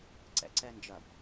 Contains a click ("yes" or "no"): yes